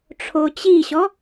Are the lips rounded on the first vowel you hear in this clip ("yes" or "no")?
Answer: yes